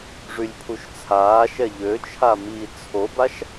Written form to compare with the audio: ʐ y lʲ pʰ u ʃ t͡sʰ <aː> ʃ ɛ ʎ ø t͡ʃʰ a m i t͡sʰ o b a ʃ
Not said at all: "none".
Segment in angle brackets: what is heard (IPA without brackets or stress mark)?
aː